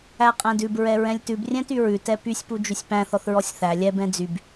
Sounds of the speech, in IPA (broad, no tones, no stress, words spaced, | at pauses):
æqʼæ̃dʉb ɹɛɹɛ̃lʲtʉb rʲɛ̃tyɹʉ tɛpysʲ pud͡ʒysʲpæ̃ θɔθɹɔsʲθæ lʲɛb ɛ̃d͡zyb